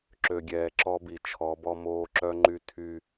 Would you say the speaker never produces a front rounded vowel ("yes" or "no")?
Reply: no